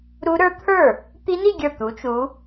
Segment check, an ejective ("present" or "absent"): absent